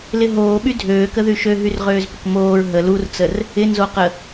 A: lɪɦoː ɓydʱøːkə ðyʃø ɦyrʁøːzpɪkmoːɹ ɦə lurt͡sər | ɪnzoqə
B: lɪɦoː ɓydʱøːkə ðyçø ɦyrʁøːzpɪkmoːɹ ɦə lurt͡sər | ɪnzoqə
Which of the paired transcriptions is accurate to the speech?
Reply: A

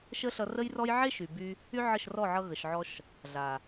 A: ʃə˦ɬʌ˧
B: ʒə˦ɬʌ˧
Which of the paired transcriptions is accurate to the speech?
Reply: A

